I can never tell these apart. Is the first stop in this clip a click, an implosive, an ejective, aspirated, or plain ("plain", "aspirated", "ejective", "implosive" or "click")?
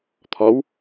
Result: aspirated